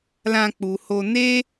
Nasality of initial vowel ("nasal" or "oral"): nasal